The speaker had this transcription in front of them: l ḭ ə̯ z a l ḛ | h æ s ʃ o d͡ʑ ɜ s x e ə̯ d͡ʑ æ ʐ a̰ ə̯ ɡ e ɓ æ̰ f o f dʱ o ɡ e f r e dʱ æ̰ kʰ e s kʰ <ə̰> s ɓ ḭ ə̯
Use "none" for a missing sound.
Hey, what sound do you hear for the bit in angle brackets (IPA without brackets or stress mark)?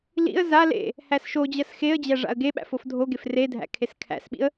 æ̰